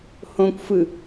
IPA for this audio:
hõkʷfɯ

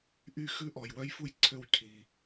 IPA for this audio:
ʔy˦˨xʉ˦˥ ʔɔ˨jwœ˦˥jfu˦˥jǀʰø˦˨w cʰi˨

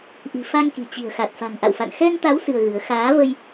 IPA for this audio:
ʔi̤˨˩ fa˧ŋki̤˨˩ t͡ɕi̤˨˩ə̯xa˨˩t̚ fa̤˨˩ŋʔa̰˧˨wfa̰˧˨n xɛ˧ŋt̪a˨˦w sɨ˧ə̯ɣɨ˨˦ə̯ xaː˨˦və˧j

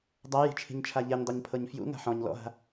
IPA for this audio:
dˤaji̤t͡ʃʰi̤ɲt͡ʃʰa ʎɛɲdˤeɲpʰɤɲ fjṵŋa̤ ħɔ̃ɲ lɔ̰ɦa̤

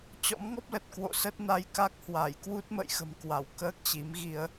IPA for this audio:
t͡ɕɔ̰˧˥mŋɔ˦˥p̚lə˨˩t̚ kwo̰˧˨ sə˦˥t̚na˧jka˦˥k̚ hwa˧˩j kwu˦˥t̚mə̰˧˨jxə̤˨˩mkwa˧˩w kəː˦˥k̚t͡ɕi˨˦mɣi˧ə̯

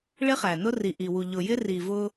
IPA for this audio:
ɭɪ˦χæ˨nʊ˦ ri˨ʔi˨wu˨ ʎʊ˨jɪ˦ ri˨vʊ˦

